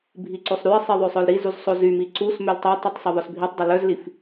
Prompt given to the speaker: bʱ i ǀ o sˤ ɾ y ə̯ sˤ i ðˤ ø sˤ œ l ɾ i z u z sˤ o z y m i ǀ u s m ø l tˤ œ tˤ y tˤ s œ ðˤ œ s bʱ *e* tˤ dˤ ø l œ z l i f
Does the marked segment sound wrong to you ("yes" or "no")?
yes